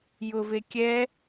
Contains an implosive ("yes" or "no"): no